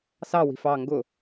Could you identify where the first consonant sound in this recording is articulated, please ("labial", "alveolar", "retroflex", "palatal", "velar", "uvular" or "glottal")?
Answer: alveolar